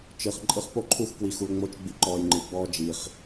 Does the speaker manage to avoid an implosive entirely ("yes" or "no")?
yes